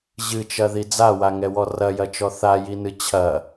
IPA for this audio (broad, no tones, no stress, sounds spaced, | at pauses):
ʑ ɨ t͡ʃ ɐ ð i d͡z a w a ŋ ɛ w ɔ r ɐ j ɐ t͡ʃ ɔ θ a j i n ɨ t͡ɕʰ ɐ